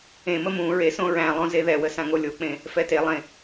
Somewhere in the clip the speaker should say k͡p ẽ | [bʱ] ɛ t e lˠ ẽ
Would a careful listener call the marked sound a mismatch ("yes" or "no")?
yes